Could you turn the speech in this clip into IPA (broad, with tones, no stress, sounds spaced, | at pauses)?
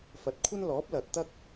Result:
f ɐ˨˥ t̚ kʷʰ ɐ˥ n l ɔː˨˥ p̚ l ɐ˨ t̚ t̪ ɐ˥ k̚